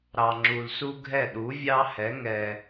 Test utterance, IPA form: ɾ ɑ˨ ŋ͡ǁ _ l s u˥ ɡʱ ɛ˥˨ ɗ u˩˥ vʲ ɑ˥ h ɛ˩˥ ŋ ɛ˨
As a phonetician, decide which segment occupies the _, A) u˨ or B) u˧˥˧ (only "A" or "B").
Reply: A